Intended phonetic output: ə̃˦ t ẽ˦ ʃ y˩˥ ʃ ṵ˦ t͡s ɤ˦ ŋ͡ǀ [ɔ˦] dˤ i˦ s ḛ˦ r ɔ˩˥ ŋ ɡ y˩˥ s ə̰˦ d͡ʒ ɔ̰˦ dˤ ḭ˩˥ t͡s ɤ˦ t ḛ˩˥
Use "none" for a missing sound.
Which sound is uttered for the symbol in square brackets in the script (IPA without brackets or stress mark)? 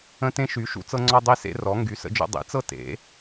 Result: ɔ˦